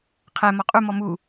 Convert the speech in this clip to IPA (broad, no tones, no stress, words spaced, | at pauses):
qʰɛ mɔqʼu mɔmu